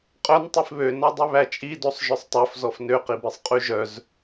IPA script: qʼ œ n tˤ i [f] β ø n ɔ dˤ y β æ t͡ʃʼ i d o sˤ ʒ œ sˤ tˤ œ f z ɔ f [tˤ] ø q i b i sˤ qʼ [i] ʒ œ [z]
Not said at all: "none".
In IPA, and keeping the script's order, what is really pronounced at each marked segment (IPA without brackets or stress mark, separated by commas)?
f, n, y, z